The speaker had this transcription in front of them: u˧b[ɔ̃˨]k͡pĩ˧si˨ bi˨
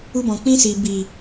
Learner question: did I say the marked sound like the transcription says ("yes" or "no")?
yes